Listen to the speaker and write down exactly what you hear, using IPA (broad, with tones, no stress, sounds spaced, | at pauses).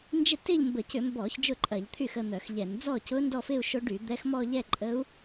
n d͡ʒ ɪ˥˩ t ɪ˥˧ ʎ m b ə˧˩˧ c ʏ˧˩˧ m b ɔ˧˩˧ ç d͡ʒ ʊ˥˩ ǃʼ ɐ˧˩˧ ʎ t̪ʰ y˥˩ x ə˥˧ n̪ œ˧˩˧ x ʎ ɛ˧˩˧ n d͡z ɔ˥˩ c ʊ˧˥ n d ɔ˥˧ f ɪ˥˧ u̯ ʃ o˧˥ ɖ y˧˩˧ d̪ ɛ˧˥ x m ɔ˥˧ ʎ ɛ˥˧ ǃʼ ə˧˥ u̯